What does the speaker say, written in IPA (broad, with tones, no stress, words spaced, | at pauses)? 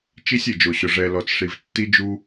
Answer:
t͡ʃi˧sʲ e˨d͡ʒo˨ɕʊ˨ ʐɛ˨ lɔ˨t͡sʂi˨vtːi˧d͡ʒu˧